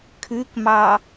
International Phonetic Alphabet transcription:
kʰ ʉ k m ɑ

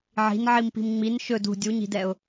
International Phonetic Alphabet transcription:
ʕ i̤ n ʕ i m p i̤ m ŋ͡m i n ʃ ɵ d ṳ dʲ u ɲ i̤ d ɛ ʊ̯

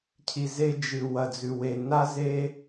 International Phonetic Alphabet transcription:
cʰ i˨ z e˧ d͡ʒ ɨ˨ w ɐ˨ d͡z ʉ˨ w e˨ n a˦ z e˦

